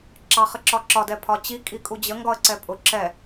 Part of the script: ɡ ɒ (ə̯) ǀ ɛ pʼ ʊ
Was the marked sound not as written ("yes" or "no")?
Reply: no